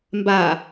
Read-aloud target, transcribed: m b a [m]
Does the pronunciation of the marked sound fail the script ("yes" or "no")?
yes